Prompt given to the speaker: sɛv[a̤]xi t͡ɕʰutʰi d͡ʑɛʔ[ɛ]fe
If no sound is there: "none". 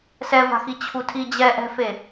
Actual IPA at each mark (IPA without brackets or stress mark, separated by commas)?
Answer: a̤, ɛ̤